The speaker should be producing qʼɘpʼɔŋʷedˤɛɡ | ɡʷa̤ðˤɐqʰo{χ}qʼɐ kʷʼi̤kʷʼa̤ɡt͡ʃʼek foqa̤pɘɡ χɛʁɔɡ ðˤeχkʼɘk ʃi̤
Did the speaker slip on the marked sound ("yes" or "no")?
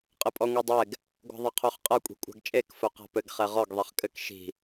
no